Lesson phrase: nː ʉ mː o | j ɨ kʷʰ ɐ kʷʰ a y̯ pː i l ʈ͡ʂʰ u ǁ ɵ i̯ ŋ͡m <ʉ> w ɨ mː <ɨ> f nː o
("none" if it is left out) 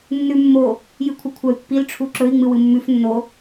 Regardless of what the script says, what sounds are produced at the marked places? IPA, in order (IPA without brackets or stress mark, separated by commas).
ɨ, ʉ